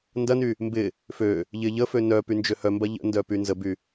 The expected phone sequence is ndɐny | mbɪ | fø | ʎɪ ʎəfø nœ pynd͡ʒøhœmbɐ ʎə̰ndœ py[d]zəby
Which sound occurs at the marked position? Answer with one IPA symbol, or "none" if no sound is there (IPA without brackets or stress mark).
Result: n